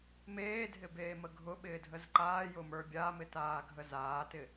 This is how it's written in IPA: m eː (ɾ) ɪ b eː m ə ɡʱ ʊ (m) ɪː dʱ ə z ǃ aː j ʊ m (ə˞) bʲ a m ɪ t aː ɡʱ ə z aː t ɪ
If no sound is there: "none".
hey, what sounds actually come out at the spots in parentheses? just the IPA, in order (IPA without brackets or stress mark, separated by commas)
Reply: dʱ, ɓ, ə˞